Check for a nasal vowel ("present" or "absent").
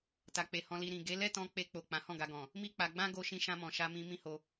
present